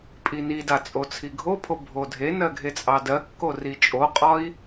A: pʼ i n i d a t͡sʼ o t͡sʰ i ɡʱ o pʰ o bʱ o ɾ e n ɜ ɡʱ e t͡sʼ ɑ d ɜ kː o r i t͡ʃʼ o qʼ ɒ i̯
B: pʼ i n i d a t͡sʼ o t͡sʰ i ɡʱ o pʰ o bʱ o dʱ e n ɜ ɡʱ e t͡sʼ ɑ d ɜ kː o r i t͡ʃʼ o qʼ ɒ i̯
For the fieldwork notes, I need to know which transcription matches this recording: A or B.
B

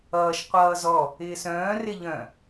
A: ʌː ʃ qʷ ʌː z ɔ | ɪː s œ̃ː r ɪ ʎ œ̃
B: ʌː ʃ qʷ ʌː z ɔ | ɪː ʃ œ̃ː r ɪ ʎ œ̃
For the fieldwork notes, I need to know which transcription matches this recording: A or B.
A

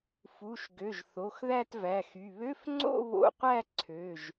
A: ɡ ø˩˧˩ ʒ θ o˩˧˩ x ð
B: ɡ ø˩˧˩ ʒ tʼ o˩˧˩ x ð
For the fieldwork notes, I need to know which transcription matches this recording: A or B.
A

